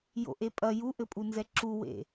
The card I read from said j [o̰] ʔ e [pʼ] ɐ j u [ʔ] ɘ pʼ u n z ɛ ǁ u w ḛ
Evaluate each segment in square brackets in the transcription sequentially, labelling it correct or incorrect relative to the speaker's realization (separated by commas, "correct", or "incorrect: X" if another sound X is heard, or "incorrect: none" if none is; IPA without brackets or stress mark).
correct, correct, correct